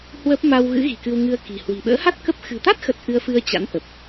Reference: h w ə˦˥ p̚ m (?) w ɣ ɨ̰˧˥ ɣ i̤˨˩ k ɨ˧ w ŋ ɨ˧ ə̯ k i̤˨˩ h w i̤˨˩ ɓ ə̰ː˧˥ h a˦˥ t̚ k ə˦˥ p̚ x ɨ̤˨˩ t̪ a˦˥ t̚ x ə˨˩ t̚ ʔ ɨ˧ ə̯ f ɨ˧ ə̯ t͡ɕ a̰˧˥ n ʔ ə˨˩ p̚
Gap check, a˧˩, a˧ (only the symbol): a˧